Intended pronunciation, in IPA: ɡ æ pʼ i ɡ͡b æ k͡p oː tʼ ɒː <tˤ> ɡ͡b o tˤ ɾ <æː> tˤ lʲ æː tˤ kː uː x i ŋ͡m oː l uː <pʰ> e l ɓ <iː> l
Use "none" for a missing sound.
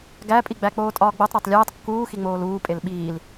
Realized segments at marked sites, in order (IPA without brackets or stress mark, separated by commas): none, æ, pʼ, iː